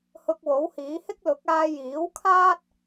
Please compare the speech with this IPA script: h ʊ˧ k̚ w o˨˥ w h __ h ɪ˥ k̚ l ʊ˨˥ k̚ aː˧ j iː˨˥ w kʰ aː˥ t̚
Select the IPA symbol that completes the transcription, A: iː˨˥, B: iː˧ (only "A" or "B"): A